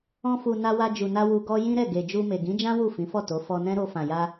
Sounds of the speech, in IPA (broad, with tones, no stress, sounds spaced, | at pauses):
ɔ̃˧ f u˨ n a˧ w a˧ d͡ʒ u˨ n a˧ w u˧ ɡ ɔ˦ j ĩ˦ ɾ ɛ˦˨ ɡ e˨ d͡ʒ u˧ m e˨ ɡ ĩ˨˦ d͡ʒ ã˦ w u˦˨ f ĩ˨˦ f ɔ˦˨ t o˨˦ f ɔ˧ n ɛ̃˦ ɾ o˧ f ã˨ j a˧